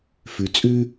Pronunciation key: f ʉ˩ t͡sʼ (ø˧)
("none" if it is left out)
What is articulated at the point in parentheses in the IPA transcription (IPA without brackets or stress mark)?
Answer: ʉ˧